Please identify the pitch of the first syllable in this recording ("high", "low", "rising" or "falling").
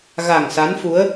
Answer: low